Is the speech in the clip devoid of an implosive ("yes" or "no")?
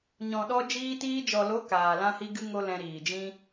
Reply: no